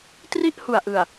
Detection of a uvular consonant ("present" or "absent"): absent